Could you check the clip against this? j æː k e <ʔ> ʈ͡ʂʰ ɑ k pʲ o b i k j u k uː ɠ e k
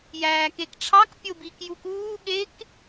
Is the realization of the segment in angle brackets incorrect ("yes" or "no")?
yes